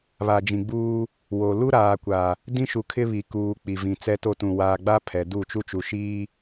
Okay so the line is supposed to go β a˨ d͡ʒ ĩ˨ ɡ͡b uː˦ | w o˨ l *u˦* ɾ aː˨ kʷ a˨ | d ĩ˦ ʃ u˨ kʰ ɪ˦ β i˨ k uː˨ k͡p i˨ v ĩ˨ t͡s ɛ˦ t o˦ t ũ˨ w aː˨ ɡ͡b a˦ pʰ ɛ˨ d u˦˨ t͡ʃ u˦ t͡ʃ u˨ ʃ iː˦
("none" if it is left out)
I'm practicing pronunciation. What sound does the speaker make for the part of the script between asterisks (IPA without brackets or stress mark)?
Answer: u˦